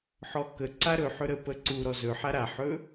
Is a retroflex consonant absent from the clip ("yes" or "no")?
yes